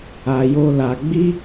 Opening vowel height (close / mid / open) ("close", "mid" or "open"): open